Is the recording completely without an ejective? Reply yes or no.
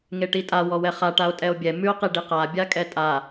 no